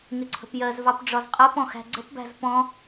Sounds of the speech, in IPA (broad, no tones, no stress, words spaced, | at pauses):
ŋɪǀʰə̤pjɜzvɑp ɖ͡ʐɒzqʼɜpɔ̃ xæ̤ɡ͡ǀə̤pbæ̤z pɔ̃